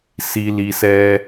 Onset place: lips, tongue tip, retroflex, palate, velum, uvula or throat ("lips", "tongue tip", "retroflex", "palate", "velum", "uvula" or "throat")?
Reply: tongue tip